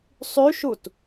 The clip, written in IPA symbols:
sˤ y ʃ u t

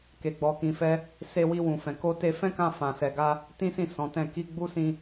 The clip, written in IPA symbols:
k e˧ ɡ͡b ɔ˧ k ĩ˧ f ɛ˦ | s e˧ w i˧ w ũ˨ f ɛ̃˨ k o˧ t e˧ f ɛ̃˦ k ã˧ f ã˨ s ɛ˨ ɡ a˧ | t ĩ˦ s ĩ˦˨ s ɔ̃˨˦ t ɛ̃˦˨ k i˧ ɡ͡b u˦ s ĩ˧

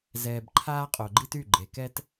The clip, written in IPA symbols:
z ɛː˨ b ǃʰ aː˦ qʼ o˨ ɡ͡ǃ i˦ t y˦˨ ɡ͡ǃ e˨ k ɛ˦ t

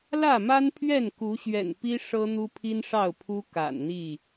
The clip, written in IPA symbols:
l ä˥˨ m a˦ n pʰ ɥ ɛ˥˨ n k u˨˦ ɕ ɥ ɛ̰˨˩ n p i˦ ʂ ɤ˦ n̪ u˦ pʰ i˦ n ʂ ɑ˥˨ ʊ̯ pʰ u˦ k a̰˨˩ n n̪ i˥˨

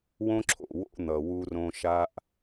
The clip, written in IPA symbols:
w õ˦ ǁʰ o̰˨ w o̰˦ n̪ ʌ˨ w u˦ r õ˦ ʃ a˦ ʔ

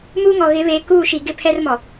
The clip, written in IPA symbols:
m uː˦ ŋ ɔ˨ ɣ ɪ˨˦ β eː˨ k uː˦˨ ʃ i˨ ɡ ɪ˦ pʰ ɛ˦ r m ɔ˨

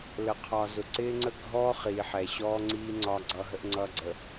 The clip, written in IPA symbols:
l ə˨ qʰ ɒ˨ z ʊ˨ ǀ ɪː˦ ŋ͡ǀ ə˦ ɡʱ ɔː˦ χ iː˨ ħ ɛ˨ ɕ ɔː˦ ŋ͡ǀ iː˦ ŋ͡ǀ ɒ˦ ɡ͡ǀ ʌː˦ ɦ ə˦ ʔ ŋ͡ǀ ʌː˦ ɡ͡ǀ ə˨

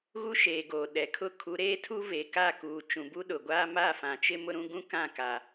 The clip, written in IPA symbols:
ɣ u˦ ʃ eː˨ ɡ oː˨ ɗ ɛ˨ kʰ ʊ˦ kʰ u˨˦ ɾ eː˦ tʰ u˦ v e˨ k a˦˨ k uː˨ t͡ʃ ũ˨ b u˦ ɗ ʊ˨ ɡʷ aː˦ m a˦˨ f ã˨ t͡ʃ ɪ˦ m ʊ˦ ɾ ũ˦ ɡ ũ˦ k ã˦˨ k a˨

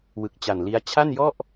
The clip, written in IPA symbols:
w ɯ˨˩ k̚ t͡ɕ a˨˩ n l i˦˥ a̯ t͡ɕʰ a˥˩ n j ɔ˥˩ ʔ

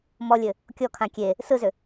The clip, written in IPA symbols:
m ɔ lʲ ɘ | kʲ ɔ kʰ ã kʲ e | s ɯ z ʏ

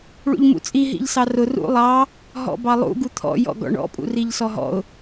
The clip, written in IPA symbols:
ɭ ṵ ʎ m ṵ t͡sʼ i ɦ ḭ ʎ s ɑ r ʊ r ṵ lˠ ɑ | ɦ ɔ̰ b ɑ lˠ ṵ ɡ u t̪ʰ ɔ̰ j ɔ̰ ɡ ɔ̰ ɳ ɔ̰ pʼ ṵ r i ʎ s ɔ ɦ ɔ̰ ʊ̯

